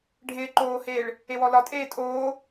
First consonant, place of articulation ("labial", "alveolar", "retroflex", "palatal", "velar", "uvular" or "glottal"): retroflex